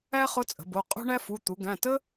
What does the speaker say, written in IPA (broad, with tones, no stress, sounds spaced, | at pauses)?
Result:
æ˥ χ ʊ˧˥ t͡sʼ ə̤˩˧ b o˩˧˩ qʼ o̤˥ ɳ æ˥ f u˩˧˩ t̪ u˩˧ ɡ æ̃˩˧˩ t ə˥